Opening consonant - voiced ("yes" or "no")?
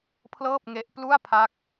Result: no